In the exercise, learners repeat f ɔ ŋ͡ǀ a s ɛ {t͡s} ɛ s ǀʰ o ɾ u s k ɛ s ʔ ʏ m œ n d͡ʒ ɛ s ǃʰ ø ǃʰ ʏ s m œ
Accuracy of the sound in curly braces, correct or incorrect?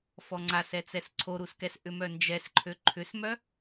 correct